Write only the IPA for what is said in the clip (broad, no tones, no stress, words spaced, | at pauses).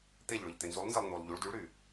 t̪eʎɭøʎ t̪enzulˠnzɛlˠ n̪ulˠ ʎuɭ dyɭɾy